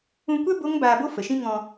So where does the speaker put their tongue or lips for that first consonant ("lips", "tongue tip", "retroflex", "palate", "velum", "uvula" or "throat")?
velum